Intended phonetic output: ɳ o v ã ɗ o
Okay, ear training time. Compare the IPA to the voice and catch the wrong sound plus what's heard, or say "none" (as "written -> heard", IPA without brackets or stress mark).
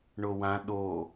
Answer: v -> w